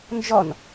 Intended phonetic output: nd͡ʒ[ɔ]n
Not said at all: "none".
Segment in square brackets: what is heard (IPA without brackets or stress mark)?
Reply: ɔ